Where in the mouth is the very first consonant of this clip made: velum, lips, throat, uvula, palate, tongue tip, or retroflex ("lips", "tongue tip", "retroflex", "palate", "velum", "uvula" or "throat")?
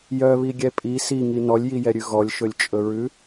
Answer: palate